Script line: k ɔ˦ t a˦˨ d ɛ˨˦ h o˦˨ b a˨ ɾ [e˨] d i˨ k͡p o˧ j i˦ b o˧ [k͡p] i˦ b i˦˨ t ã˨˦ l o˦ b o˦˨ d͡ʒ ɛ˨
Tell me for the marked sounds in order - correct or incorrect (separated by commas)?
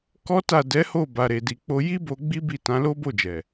correct, incorrect